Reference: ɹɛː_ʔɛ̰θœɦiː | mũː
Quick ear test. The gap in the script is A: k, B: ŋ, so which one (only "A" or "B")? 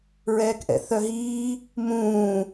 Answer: A